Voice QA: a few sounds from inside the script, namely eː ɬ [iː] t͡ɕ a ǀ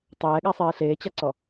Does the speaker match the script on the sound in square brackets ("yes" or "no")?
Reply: no